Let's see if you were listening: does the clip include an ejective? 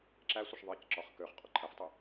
yes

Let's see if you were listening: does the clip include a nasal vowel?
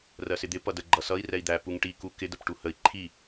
no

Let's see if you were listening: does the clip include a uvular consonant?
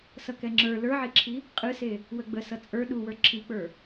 yes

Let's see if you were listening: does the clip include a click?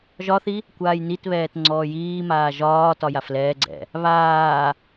yes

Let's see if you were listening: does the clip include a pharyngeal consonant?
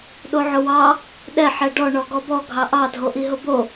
yes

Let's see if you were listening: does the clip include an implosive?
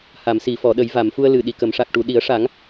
yes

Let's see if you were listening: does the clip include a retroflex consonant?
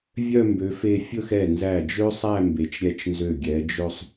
no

